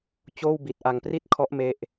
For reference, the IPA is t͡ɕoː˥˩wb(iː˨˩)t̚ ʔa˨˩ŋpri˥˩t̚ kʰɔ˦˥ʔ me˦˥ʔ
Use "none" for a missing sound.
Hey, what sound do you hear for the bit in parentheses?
i˨˩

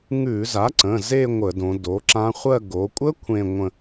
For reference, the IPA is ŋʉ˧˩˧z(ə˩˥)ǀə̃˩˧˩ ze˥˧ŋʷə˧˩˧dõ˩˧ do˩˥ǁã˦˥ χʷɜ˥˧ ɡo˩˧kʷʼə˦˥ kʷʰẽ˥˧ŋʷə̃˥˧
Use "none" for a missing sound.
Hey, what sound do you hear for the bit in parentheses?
a˩˥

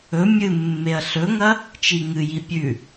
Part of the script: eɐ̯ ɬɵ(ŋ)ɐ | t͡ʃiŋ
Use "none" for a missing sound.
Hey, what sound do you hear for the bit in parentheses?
ŋ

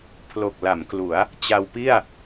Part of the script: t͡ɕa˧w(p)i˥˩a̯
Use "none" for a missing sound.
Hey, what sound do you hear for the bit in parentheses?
p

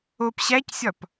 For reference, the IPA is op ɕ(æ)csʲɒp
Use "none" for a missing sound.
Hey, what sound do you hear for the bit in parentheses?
æ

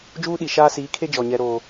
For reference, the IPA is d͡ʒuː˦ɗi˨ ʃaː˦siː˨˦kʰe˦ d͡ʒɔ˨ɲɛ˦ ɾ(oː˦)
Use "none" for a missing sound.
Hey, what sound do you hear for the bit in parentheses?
oː˦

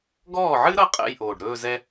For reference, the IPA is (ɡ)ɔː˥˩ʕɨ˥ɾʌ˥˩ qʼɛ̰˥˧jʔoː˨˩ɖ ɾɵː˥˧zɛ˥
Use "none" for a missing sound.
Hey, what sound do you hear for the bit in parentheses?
ɡ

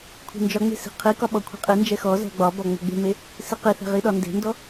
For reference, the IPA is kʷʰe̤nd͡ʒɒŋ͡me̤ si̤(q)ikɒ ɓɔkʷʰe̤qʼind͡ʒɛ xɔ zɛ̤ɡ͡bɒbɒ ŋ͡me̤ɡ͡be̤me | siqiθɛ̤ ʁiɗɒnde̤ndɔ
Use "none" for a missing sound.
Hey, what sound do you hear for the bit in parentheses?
qʰ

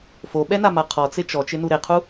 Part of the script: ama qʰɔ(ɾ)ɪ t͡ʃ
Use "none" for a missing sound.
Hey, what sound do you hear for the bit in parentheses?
t͡s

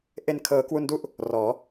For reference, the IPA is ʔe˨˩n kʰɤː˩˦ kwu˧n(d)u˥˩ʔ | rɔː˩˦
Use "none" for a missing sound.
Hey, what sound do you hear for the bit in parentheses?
d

